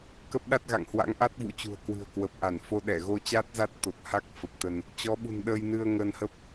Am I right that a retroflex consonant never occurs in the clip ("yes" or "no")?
yes